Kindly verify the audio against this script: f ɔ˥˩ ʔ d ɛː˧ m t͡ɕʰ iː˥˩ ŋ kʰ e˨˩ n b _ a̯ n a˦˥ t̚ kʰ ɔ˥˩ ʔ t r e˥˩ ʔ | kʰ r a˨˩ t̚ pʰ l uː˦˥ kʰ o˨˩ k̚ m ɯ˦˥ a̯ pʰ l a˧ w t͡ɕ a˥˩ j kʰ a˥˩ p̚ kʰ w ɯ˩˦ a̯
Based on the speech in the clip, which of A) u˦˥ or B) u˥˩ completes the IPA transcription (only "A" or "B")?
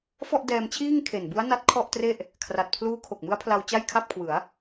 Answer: A